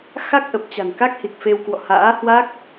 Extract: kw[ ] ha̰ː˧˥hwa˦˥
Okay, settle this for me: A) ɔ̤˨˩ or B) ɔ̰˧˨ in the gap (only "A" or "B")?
B